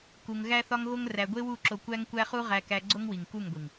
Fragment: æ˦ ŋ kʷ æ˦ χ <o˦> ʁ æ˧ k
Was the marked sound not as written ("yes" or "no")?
yes